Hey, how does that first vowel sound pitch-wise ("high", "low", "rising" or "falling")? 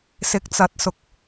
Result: rising